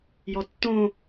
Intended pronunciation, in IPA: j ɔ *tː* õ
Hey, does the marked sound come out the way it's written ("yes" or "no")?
yes